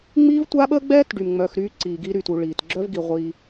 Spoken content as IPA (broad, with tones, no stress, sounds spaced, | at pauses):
ŋ͡m i˦ v tʷ a˦ ɓ əː˦ ɡ͡b ɛː˦ t ɖ y˨ m ŋ͡m œ˧ x ɾ yː˦ ǀ iː˧ ɡ i˦ ɾ y˦˨ t u˧ ɭ iː˨ t ɡ͡ǁ œ˦ v ɡ i˨ ʁʷ iː˧